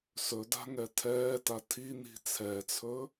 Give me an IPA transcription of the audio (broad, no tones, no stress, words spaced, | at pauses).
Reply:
sɵda̤ŋɛ tʰɛːta tʰin̪i̤ t͡sʰɛt͡sʰɵ